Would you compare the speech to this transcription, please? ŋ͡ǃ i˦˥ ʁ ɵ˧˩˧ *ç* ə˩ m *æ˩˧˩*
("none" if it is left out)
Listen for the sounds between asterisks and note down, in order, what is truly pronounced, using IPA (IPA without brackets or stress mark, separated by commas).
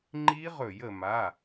j, a˩˧˩